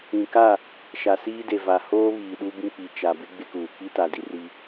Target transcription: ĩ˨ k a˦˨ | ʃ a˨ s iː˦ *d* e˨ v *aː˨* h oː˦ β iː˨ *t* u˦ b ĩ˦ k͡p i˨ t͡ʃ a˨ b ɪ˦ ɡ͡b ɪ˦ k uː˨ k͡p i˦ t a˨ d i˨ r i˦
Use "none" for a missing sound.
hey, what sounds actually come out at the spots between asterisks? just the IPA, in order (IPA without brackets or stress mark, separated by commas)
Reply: d, a˨, ɗ